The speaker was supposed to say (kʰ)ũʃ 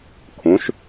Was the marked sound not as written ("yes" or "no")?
no